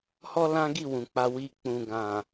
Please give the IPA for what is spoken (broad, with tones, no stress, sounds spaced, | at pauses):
h ɔ˦ l ã˦ ɡ i˦˨ w ũ˨ k͡p a˧ w i˧ k͡p ũ˨ ɡ ã˨